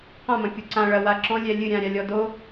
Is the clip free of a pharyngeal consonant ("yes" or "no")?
yes